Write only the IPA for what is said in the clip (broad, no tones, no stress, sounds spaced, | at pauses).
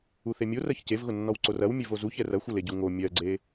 u θ e mʲ o r ɜ ç c e v ɣ ʊ nː ɔ w ǀ o r ɐ w mʲ e v o z u ç ɛ r ɐ xʷ ɐ l e ɟ u ŋ o mʲ ɜ ɡ͡ǀ e